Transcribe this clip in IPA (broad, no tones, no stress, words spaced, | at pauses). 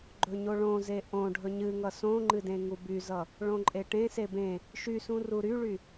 ɡ͡ǃɵɲoɭõze ʔõ ɖʱɵɲɨŋʌ sõŋ͡ǃɨ dẽŋubyzʌ | ɭõǃʼeʈẽse bẽ | ʃysũ ruɾyɭy